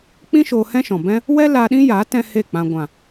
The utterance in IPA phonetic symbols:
k͡p ĩ˦ ʃ oː˧ h ɛ̃˦ ʃ ɔ̃˨ b ɛ̃˦ | w ɛ˦ l aː˧ ɗ ĩ˦ j aː˨˦ t ɛ̃˦ h e˦˨ k͡p ã˨ ɡʷ ã˨

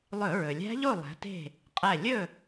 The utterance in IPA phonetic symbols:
lˠ ɵ˧˩˧ ɹ ɵ˩ lʲ æ̤˦˥ ʎ o˥˨ lˠ æ̤˨˦ t e̤˥˨ | qʼ æ˧˩ lʲ ɵ˥˨

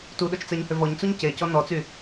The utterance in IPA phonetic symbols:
t u ɗ o t͡ʃ t͡s ɛ ɲ h ø v ɔ ɲ t͡s u ɲ c e c ɔ n ɔ t͡s y

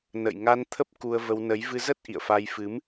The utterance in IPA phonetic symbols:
n ə̰˧˨ j ŋ a˧ n t̪ʰ ə˦˥ p̚ k u˧ ə̯ v ə˧ w n ə˨˦ j v ɨ˧ z ə˦˥ t̚ ʔ ḭ˧˨ ə̯ f a˧ j f ɨ˨˦ m

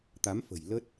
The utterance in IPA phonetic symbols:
t̪ a˨˦ m f ə̤˨˩ j l ə˦˥ t̚

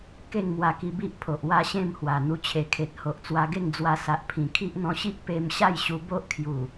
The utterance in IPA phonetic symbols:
k e˥˧ ŋ m w a˧ k i˧ b i˦ ʔ pʰ o˨ ʔ w a˥˧ ɕ ẽ˥˧ m h w a˨˩ n̪ u˧ t͡ɕʰ e˨˩ kʰ e˨ t̚ h o˨ ʔ t͡s w a˧ ɡ e˥˧ ŋ d͡z w a˧ s a˨ ʔ pʰ ĩ˨˩ kʰ i˦ ʔ n̪ ɔ̃˧ ɕ i˦ ʔ p e˧ m ɕ a˥˧ j ɕ u˧ b o˦ ʔ kʰ j u˨˩

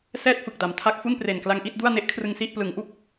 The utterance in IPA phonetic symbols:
s ɛː˥˩ t̚ f ɯ˨˩ k̚ d a˩˦ m tʰ a˦˥ k̚ f u˥˩ n p r e˨˩ n k l a˧ ŋ ʔ i˥˩ t̚ d u˥˩ a̯ n e˦˥ ʔ kʰ r ɯ˧ ŋ s i˥˩ ʔ p l ɯ˩˦ ŋ ʔ u˥˩ k̚

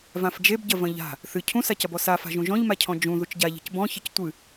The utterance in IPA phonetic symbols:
v ã f d͡ʒ e b ɟ ɐ v ɐ̃ ʎ a̤ | θ ɨ cʰ ũ s a c ɐ b ɔ s a f a̤ ʒ ũ ʒ ɔ̃ ʎ m a cʰ ɔ̃ d͡ʒ ũ ð u t͡ʃ ɟ a ʎ e̤ c b ɔ̃ ç ɘ c tʷ ɨ

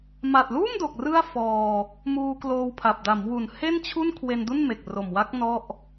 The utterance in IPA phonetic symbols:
m a˨˩ t̚ l uː˥˩ m d o˨˩ k̚ r ɯ˥˩ a̯ f ɔː˧ | m uː˧ k l oː˧ w pʰ a˨˩ p̚ d a˩˦ m w u˨˩ n h e˥˩ n t͡ɕʰ u˥˩ n kʰ w e˧ n d u˥˩ n m e˨˩ k̚ r o˨˩ m w a˦˥ k̚ n ɔ˥˩ ʔ

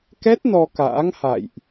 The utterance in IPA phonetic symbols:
k ɛ˦˥ t̚ n ɔ˧ k a̰ː˧˥ ŋ h a̰˧˨ j ʔ

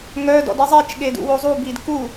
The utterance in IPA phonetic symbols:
ŋ œ d ɔ̰ d i zˤ i t͡ʃ ɠ e d ṵ w o zˤ u b i d k u

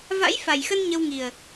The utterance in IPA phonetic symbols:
v a̰˧˥ j f a˨˩ j x ə˧ n ɲ ə˧ w ŋ i˨˩ ə̯

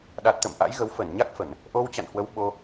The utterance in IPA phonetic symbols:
ɗ a˨˩ t̚ t̪ ə̰˧˨ m ʔ a̰˧˥ j ɣ ə˨˦ w f ə˧˩ n ɲ a˦˥ k̚ f ə˧˩˨ n | ʔ o˧ w t͡ɕ a̰˧˨ n h w ə˨˦ w ɓ o˧

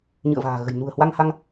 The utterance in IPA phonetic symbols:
ɲ ɨ̰˧˨ ə̯ v a̤ː˨˩ ɣ ə̤˨˩ j n ṳ˨˩ ə̯ h w a˧ ŋ h a˧ ŋ

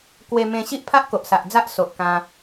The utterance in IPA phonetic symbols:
k w e˧ m ẽ˧ ɕ i˦ ʔ pʰ a˦ ʔ k o˨ ʔ s a˨ ʔ d͡z a˦ ʔ s o˨ ʔ k ã˧

